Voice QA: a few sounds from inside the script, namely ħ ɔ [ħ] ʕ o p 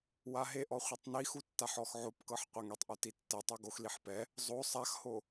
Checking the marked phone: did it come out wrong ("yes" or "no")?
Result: yes